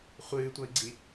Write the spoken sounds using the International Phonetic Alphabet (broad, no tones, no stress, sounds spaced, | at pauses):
χʷ ɨː tʷ ɐ i̯ ɡ͡ǀ i